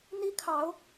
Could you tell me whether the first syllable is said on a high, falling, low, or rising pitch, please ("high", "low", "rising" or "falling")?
high